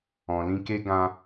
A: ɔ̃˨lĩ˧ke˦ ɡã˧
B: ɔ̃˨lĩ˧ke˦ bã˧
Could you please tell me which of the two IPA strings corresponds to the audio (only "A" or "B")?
A